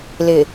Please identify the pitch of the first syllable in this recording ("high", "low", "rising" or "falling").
low